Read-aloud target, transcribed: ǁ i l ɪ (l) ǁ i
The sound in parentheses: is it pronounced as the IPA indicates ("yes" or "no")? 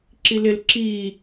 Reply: yes